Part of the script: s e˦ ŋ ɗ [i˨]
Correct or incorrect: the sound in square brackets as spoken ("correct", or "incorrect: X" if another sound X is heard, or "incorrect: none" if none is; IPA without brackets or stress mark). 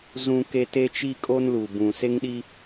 incorrect: i˦